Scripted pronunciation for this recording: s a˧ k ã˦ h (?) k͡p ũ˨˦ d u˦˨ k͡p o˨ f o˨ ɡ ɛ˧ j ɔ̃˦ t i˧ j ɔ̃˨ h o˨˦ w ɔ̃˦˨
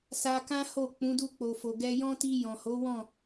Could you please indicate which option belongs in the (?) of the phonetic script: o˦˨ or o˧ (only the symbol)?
o˦˨